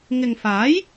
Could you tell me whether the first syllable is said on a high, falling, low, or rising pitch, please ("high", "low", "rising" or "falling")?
low